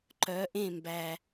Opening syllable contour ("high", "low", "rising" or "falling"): rising